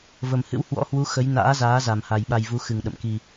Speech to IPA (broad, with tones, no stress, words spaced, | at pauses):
və˨˩mhɨ̰˧˥w hwɔ̰˧˥hwu˨˦ xə˨˦j na̰ː˧˥zaː˨˦za˨˩mha˨˩j ɓa˧j vu˨˦xɨ˨˩ŋ ɗə̰˧˨mki˧